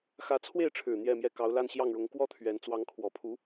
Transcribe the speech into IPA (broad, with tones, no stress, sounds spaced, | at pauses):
x ä˧˥ t͡sʰ w e˥˩ ɪ̯ ʈ͡ʂʰ ɻ̩˨˩ n̪ j ɛ˥˧ m j ɛ˥˩ k ɑ˧˥ ʊ̯ l a˥˧ n ɕ j ɑ˥˩ ŋ ɻ ʊ˧˥ ŋ k w ɔ˥ t̪ʰ ɥ ɛ˧˥ n t͡s w ɑ˧˥ ŋ kʰ w ɔ˨˩ pʰ u˧˥